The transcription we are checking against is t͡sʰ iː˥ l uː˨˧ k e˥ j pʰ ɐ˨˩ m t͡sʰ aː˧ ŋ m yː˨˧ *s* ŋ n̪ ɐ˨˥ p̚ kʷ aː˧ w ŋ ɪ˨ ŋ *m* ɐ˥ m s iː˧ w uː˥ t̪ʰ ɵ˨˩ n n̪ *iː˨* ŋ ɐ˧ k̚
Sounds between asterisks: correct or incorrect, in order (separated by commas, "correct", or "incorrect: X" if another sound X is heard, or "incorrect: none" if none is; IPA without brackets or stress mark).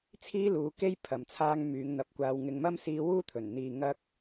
incorrect: none, correct, correct